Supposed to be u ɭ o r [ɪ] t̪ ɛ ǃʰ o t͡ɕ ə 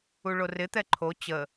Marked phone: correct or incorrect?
correct